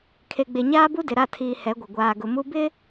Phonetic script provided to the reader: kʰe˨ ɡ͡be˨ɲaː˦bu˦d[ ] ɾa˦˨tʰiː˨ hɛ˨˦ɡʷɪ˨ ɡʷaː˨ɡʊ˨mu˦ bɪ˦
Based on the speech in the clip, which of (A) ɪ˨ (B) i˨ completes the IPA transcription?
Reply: A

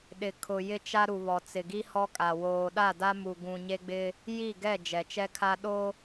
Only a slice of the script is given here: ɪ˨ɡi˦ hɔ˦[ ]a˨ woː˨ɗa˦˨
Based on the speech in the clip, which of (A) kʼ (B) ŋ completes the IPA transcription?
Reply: A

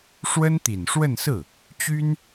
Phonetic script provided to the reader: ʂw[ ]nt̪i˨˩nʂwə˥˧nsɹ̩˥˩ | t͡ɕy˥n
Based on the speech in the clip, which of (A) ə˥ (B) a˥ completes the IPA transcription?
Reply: A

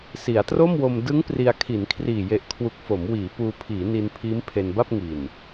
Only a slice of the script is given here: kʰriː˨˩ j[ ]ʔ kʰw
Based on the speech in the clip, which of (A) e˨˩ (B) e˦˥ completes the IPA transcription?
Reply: A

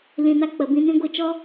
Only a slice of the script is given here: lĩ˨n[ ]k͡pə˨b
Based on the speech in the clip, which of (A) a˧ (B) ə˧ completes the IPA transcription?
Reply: A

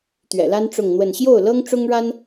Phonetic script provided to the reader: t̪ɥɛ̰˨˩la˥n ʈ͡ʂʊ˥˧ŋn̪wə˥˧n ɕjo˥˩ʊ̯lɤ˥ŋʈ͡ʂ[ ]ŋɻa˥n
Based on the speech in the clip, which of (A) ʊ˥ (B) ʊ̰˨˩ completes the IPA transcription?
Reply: A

